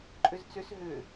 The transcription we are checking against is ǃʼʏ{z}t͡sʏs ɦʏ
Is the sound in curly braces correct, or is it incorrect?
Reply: correct